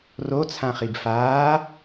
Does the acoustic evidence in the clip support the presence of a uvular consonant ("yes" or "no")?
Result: yes